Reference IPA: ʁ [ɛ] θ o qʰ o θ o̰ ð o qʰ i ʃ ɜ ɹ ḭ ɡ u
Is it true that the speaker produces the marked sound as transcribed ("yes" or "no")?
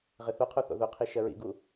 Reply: no